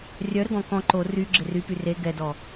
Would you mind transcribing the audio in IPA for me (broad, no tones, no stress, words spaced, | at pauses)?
rʲœɾəɡɔ̃ kɔ̃ ǃo ry ɡ͡ǁɪrypy re ɡɛdɔ